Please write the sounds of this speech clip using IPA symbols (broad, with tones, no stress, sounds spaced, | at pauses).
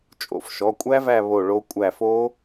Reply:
t͡ʃʼ o̰˨˦ f ʃ ɔ˩˧˩ kʷʼ æ˦˥ v æ˦˨ β o˦˨ ɭ o˦˥ kʷʼ æ˦˨ f o˦˥